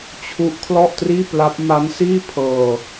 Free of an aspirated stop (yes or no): no